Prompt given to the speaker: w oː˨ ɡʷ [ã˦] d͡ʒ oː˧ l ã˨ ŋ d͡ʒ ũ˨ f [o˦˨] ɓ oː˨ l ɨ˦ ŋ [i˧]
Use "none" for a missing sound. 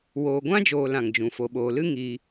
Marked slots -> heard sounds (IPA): ã˦, o˨, i˧

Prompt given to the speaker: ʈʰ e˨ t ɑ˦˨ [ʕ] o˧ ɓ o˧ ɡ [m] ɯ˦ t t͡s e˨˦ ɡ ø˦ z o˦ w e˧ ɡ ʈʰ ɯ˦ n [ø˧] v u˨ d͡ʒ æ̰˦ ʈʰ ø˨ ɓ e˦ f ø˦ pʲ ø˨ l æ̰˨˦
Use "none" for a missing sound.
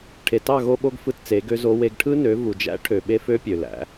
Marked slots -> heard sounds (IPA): ɣ, f, ø˨˦

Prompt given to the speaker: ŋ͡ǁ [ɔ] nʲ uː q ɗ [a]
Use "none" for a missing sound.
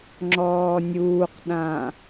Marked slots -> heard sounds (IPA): ɔː, ã

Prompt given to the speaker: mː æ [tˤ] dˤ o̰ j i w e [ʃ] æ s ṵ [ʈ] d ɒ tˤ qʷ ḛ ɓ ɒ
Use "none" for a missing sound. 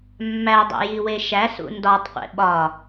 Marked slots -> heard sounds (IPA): none, ʃ, n

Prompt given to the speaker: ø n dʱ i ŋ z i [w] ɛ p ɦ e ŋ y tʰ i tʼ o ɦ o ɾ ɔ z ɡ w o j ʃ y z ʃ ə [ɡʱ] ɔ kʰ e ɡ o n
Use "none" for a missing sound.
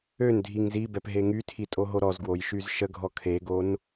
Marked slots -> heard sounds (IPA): b, ɡʱ

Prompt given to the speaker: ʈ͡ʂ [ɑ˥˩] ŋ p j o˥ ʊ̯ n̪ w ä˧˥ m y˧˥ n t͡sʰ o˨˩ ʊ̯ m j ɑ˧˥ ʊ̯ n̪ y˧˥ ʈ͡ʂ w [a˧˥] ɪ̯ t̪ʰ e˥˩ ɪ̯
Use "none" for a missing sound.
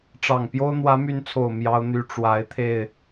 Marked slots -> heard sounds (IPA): ɑ˨˩, a˧˥

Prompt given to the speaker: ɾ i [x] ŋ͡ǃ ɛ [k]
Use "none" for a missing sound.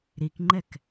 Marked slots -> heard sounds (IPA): k, k

